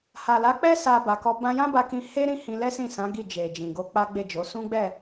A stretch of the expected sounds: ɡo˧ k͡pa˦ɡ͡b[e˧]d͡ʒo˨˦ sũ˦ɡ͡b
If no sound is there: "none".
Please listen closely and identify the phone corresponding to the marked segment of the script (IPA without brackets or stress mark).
e˦˨